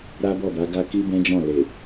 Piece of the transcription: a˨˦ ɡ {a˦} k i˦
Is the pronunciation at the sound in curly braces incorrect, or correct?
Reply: incorrect